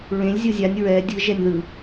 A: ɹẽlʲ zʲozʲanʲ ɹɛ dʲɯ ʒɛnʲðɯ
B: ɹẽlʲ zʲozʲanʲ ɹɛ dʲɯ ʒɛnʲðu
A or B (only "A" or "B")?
A